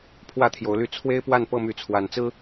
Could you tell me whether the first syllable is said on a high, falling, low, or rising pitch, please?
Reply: high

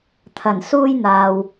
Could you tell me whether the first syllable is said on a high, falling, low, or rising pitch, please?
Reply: low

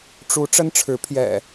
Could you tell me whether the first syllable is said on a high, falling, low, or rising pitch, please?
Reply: rising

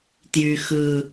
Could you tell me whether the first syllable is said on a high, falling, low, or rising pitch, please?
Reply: low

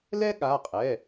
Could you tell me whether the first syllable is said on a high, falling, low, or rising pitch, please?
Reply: high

